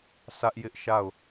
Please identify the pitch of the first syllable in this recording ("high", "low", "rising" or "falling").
high